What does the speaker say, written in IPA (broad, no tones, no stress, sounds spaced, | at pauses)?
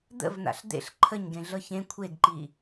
d̪ ə̰ v n̪ a̰ ɬ d̪ ḛ ɬ ǃʰ ə ɲ ɡ ẽ ɮ ɤ ç ẽ kʷʰ e ɡ ǃ i